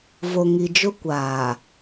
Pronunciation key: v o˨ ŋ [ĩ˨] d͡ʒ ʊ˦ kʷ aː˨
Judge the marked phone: incorrect: i˨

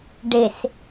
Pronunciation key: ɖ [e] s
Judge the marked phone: correct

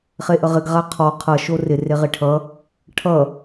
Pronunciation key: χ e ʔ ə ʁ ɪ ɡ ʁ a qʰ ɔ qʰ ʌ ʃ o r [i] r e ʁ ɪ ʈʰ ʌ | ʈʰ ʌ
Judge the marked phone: incorrect: ɪ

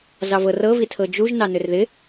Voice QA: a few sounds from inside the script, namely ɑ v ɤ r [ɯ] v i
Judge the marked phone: incorrect: ɤ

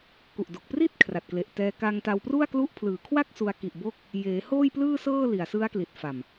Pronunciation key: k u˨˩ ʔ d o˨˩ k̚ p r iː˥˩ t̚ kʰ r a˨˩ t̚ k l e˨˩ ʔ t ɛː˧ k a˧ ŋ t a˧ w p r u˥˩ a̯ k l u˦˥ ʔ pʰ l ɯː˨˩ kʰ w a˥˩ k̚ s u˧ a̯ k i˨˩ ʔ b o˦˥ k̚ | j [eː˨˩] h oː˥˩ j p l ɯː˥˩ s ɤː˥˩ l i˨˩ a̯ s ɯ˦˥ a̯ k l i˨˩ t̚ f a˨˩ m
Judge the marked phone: incorrect: eː˩˦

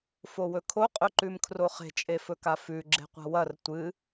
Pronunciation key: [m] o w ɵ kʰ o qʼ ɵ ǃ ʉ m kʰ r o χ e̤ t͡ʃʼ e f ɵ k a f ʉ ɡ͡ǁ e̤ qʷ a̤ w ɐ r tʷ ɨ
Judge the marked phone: incorrect: f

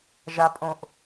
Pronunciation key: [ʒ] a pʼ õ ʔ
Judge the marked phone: correct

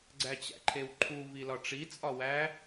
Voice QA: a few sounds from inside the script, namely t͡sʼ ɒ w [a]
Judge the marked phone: incorrect: æ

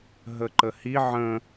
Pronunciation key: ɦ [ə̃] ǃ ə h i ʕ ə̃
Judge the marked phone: incorrect: ə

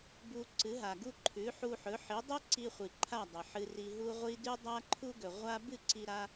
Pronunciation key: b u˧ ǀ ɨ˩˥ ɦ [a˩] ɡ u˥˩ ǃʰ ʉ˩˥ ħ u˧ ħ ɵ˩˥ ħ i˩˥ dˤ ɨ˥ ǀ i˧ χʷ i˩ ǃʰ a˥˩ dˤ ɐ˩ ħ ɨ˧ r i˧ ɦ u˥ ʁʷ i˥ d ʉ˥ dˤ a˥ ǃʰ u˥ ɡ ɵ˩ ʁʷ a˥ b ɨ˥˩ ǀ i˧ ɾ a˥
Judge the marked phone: correct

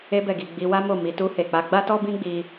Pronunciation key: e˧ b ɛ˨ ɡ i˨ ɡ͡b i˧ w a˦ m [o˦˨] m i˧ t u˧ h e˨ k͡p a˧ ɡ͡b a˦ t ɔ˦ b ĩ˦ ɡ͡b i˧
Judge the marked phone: correct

